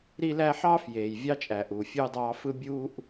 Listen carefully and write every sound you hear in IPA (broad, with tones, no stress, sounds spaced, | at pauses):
ɾ i˦ l æ˦ ħ ɑː˥ f j eː˨ j vʲ ɑ˦ t͡ʃʼ æ˨ ʔ u˨ fʲ uː˦ dˤ ɑː˦ f ɯ˥ bʲ uː˥ ʔ